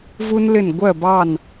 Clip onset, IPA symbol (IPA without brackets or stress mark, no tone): v